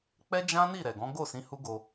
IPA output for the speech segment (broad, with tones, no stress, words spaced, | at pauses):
k͡pɛ˦ d͡ʒã˦ ni˦˨ɾɛ˨ ɡɔ̃˨˦ɡo˦˨sĩ˨˦ hu˦ɡo˧